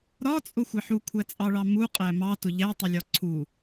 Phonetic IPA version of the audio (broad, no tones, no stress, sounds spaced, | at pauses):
ɾ ɒ t͡sʼ ʊ xʷ ɛ ħ u kʷʰ æ t͡sʼ ɑ ɭ ɑ m u qʼ æ m ɑ t ʊ ʎ æ tˤ ʊ lʲ ɒ ǀʰ u